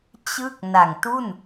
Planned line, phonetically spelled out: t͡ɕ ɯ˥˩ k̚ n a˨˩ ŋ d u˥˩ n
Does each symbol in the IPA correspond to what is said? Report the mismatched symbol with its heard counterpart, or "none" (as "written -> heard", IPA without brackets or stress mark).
d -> t